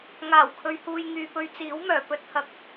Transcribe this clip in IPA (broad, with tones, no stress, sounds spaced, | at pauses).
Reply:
ŋ aː˨˩ w kʰ ɵ˨ ɥ h uː˨ j ŋ yː˨ p ɵ˧ ɥ t͡s iː˨˥ w m œː˨˩ p ɵ˥ t̚ h ɐ˨ k̚